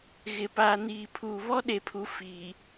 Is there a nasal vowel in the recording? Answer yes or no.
no